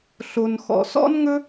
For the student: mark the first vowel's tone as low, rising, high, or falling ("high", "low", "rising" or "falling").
low